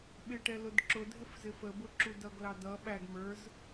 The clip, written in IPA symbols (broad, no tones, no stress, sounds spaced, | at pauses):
ɓ ɪ ʈ ɛ l ʊ d ǁ ʊ dʱ ɪ f z ɪ f ə b ʊ ǁ u d ʌ ɡ l ɑ d ʌ ɓ æ ɡ m ə˞ z